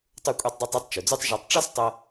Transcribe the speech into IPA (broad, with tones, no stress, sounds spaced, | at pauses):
tˤ u˧ kʷʼ i˧ tˤ dˤ o˧ tˤ i˧ tˤ t͡ʃ u˩ d͡z u˥ tˤ ʒ ɤ˧ tˤ ʈ͡ʂ ɔ˥ s tˤ ɤ˧